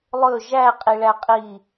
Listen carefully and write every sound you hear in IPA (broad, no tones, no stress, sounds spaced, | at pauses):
lˠ ɵ ʒ æ qʼ i ɭ æ qʼ i